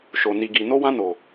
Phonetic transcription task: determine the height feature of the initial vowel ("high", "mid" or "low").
mid